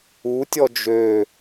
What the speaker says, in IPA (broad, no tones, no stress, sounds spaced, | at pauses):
u tʲ ɔ d͡ʒ ø